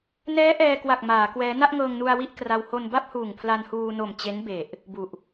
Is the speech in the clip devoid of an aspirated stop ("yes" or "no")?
no